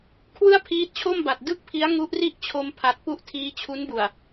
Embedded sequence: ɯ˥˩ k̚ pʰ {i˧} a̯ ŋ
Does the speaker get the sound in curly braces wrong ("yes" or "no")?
yes